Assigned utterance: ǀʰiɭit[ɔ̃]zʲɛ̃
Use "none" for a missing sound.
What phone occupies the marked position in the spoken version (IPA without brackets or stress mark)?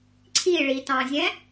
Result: ɑ̃